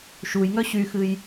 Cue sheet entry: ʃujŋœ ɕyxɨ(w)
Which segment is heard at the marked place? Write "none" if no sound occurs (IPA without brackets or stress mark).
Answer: j